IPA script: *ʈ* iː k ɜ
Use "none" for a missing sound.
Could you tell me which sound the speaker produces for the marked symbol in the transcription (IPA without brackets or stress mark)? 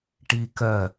ʈ